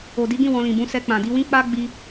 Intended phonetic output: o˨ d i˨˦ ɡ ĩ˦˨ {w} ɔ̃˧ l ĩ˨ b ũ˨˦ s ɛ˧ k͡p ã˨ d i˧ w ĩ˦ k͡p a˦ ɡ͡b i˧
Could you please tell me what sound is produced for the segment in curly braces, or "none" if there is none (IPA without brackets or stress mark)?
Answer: w